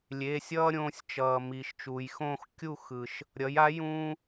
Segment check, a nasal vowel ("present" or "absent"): present